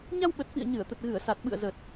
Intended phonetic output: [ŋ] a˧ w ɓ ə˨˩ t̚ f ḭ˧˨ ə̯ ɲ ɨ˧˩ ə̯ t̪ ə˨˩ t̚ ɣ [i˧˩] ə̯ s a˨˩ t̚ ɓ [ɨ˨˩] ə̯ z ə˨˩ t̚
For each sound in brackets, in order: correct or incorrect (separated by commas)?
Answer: incorrect, incorrect, incorrect